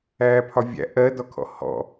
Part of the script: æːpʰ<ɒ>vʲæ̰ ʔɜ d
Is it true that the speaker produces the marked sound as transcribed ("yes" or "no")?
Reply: yes